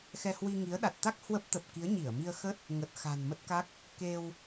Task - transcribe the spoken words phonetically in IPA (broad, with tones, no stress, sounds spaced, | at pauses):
x ɛ˧ h w i˧ ŋ i˨˦ ə̯ ɗ a˨˩ t̚ t̪ a˦˥ k̚ h w ə˦˥ p̚ t̪ ə˨˩ p̚ k i˨˦ ə̯ ɲ i˧˩ ə̯ m i˧ ə̯ x ə˦˥ t̚ | ŋ ə˨˩ t̚ x a̤˨˩ n m ə˦˥ t̚ k a˦˥ k̚ | k e˧ w